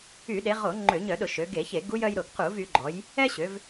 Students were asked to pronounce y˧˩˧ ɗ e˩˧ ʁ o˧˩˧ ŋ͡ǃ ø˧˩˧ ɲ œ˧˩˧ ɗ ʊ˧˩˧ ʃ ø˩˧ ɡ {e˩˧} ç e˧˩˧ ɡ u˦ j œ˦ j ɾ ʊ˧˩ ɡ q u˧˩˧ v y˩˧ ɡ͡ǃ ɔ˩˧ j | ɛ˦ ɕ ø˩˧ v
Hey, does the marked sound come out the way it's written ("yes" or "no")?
no